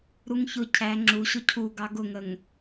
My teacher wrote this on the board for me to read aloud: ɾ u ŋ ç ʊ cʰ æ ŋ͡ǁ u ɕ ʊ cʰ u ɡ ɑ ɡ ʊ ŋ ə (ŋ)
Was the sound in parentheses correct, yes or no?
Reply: yes